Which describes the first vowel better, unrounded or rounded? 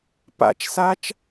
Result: unrounded